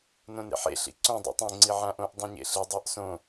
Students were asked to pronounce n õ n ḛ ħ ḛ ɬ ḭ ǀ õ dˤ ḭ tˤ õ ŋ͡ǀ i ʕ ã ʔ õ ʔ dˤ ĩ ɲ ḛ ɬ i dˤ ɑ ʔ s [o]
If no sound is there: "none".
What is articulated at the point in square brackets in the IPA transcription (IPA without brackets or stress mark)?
õ